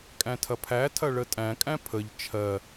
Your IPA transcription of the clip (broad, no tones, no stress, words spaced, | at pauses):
kʼæ̃tʰɐpʰætʰɐ ɭətʼæ̃kʼæ̃ pʰəʎ t͡ʃʰɜ